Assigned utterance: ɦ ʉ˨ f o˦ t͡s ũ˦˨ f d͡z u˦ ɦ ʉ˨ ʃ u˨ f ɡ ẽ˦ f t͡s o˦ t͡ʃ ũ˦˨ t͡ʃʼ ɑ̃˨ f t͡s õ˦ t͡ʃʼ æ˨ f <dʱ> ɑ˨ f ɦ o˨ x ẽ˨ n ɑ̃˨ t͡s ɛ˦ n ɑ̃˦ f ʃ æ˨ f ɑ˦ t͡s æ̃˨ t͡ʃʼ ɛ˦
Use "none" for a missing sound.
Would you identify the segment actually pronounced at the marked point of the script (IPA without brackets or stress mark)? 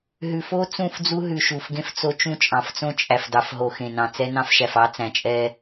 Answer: d